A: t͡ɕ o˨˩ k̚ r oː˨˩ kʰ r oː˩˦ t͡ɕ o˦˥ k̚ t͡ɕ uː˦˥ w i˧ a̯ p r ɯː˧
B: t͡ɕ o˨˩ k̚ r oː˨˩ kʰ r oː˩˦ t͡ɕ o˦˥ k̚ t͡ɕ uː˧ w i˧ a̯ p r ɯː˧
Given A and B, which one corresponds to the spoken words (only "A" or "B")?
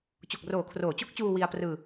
B